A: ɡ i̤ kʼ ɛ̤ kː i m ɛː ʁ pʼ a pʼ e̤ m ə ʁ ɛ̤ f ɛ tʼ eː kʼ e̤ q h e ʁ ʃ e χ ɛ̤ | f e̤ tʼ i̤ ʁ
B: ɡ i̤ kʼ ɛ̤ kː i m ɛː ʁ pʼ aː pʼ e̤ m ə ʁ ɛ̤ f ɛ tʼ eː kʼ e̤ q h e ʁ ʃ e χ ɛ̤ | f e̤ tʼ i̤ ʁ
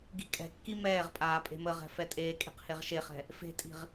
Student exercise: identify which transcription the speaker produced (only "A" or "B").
B